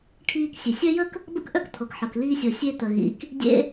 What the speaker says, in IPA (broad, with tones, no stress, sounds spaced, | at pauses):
ʈʰ iː˧ k sʲ e˩ sʲ œ˥ j ə˥ k | b ə̰˥ k ʔ œ˥ k t̪ʰ ɤ˩ k ħ ɤ˩ k l iː˧ sʲ ɤ˩ sʲ e˧ t̪ ə˩ ɣ ḭ˩ k | dʲ ḛ˧